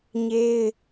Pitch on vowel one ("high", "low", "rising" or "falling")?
high